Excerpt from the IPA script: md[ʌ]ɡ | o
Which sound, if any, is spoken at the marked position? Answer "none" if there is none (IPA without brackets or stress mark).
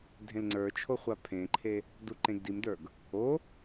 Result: ə˞